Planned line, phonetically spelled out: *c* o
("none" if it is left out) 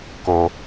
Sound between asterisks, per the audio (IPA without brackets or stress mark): k